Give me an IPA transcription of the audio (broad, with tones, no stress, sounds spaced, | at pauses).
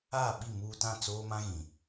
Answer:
aː˦˨ ɓ i˦˨ m uː˦ t ã˦˨ t͡s oː˦ m ã˦ ɣ ĩ˨